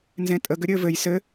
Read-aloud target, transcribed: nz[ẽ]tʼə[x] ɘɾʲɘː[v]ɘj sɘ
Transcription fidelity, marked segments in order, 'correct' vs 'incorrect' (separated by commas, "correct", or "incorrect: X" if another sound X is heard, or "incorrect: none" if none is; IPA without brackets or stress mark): correct, incorrect: ɡ, correct